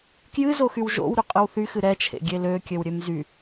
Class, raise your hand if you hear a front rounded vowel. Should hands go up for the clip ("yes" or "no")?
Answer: yes